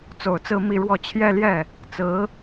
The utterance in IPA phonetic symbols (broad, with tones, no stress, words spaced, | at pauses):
t͡so˨˩ʊ̯t͡sɹ̩˥˧ mi˥˧ɻwɔ˥˧ t͡ɕʰjɛ˥˧ljɛ˥˩ | t͡sɹ̩˧˥